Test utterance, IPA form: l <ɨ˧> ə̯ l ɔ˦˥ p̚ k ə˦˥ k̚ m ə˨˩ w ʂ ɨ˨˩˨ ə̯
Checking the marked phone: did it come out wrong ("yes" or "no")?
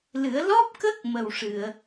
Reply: yes